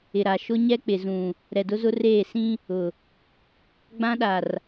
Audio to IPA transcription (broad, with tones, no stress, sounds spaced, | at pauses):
ɪ˨ ɾ a˨ ʃ ʊ˦ ɲ ɛ˦ k͡p ɪ˨ z ũ˨ | ɾ ɛ˨ d ʊ˦ z ʊ˦ r eː˦˨ s ĩ˦ | ʊ˨ | ɡ͡b ã˦ ɗ a˨ r